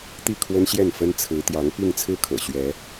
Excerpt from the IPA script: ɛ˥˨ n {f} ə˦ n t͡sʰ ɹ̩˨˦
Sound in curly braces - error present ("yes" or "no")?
no